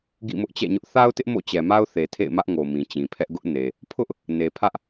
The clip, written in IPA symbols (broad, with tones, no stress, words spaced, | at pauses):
ɡḭ˦˨mʊ˦ʔt͡ɕɛ̰˦˨ɲʊ˦ʔ θa˦ʊ̯tɪ˦ʔ mo̰˦˨t͡ɕɛ˨ma˦ʊ̯θe˨ tʰḛ˦˨ɪ̯mä˦ʔŋo˨ mĩ˨t͡ɕĩ˨pʰɛ˦ʔ ɡʊ˦ʔ ne˨ | pʰʊ˦ʔ | ne˨pʰä˦ʔ